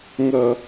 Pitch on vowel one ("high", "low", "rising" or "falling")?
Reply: low